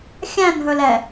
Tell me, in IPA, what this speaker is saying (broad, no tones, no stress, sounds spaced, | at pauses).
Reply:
xʲ æ̃ n ɦ ɵ l ɛ